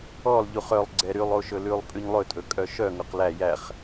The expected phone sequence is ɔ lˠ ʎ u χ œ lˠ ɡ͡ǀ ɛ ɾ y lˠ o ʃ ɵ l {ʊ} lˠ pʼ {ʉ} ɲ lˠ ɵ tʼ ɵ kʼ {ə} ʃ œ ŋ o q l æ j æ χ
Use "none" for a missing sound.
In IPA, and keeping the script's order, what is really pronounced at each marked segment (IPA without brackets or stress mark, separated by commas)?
ʉ, ʉ, œ